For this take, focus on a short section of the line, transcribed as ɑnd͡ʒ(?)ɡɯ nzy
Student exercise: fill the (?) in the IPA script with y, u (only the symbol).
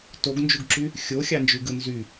y